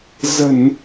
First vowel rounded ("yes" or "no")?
no